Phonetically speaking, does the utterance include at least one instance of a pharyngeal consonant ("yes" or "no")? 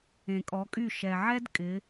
yes